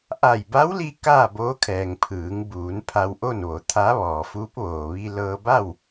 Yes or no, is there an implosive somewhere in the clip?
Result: no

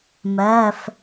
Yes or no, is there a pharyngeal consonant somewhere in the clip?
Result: no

